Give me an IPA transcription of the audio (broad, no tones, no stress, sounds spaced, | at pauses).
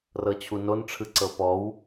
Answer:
r ɤ t͡ɕʰ u n o n ʈ͡ʂʰ ɯ ǀ ɤ p ɔ w